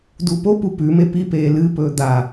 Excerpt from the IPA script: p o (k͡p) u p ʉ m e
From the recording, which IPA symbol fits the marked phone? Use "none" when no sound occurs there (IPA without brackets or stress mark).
p